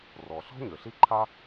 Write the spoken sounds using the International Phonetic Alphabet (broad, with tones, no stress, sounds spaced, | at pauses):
r ɔ˩ ɬ ɔ̤˥ ɲ ø˩ ɬ i˥ ǃʰ a˥